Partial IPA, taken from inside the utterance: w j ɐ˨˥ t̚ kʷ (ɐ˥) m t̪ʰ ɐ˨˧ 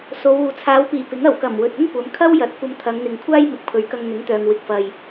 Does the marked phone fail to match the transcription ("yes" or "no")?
yes